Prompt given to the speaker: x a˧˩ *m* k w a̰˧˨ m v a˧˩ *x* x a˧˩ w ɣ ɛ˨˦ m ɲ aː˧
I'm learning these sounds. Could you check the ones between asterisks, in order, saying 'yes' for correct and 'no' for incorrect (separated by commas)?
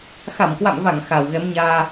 yes, no